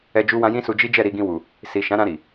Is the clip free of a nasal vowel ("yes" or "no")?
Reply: no